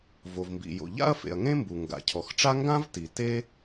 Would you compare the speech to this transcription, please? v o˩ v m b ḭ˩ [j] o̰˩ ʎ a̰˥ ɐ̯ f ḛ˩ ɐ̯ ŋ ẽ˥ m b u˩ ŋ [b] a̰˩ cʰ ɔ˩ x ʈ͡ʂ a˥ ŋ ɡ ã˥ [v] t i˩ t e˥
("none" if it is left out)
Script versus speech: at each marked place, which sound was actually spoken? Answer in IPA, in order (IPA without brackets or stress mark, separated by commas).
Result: j, ɡ, v